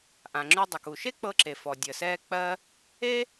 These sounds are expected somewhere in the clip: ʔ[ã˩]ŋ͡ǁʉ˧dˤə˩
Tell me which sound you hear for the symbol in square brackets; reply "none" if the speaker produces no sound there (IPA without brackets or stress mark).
ã˩